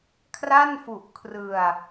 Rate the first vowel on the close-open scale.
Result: open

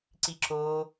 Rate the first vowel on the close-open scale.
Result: close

